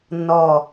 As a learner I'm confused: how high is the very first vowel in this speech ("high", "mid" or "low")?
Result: mid